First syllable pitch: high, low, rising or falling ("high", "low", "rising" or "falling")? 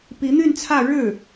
rising